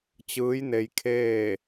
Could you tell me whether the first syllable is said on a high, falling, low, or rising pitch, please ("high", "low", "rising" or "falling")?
rising